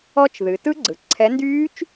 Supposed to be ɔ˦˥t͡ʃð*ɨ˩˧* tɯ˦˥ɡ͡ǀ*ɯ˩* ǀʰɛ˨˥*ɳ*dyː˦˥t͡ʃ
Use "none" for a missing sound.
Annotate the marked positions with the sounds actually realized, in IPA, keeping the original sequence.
ɨ˩˧, ɯ˩, n

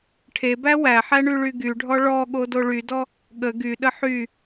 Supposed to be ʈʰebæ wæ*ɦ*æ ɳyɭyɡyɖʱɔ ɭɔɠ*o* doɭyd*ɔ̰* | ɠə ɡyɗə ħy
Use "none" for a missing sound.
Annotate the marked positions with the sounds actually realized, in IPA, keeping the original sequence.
ħ, o, ɔ

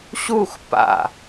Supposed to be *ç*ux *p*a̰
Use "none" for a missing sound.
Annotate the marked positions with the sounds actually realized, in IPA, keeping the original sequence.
ɕ, p

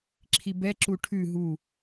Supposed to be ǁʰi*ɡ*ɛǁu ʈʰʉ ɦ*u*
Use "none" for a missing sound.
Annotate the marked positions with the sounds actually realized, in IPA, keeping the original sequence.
b, u

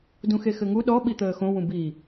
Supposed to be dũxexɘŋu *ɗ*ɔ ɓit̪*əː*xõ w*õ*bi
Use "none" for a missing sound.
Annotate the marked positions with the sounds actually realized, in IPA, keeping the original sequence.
ɗ, əː, ũ

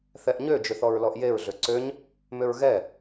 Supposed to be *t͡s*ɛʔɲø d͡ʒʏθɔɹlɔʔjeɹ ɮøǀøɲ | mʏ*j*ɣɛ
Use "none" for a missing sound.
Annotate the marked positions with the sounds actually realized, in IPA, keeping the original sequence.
θ, ɹ

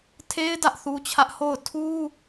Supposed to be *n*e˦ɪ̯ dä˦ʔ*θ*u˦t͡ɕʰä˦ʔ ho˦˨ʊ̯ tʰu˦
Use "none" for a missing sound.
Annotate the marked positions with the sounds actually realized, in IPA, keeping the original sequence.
tʰ, θ

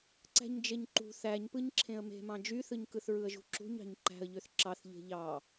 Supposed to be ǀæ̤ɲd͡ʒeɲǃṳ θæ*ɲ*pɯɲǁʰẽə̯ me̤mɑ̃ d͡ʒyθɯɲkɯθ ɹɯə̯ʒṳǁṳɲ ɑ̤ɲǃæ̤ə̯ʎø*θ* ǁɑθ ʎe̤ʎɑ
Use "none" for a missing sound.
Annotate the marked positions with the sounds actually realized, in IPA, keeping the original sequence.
ɲ, θ

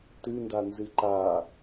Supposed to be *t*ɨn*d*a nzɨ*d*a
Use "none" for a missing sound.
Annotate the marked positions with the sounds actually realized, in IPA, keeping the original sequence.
t, d, ǃ

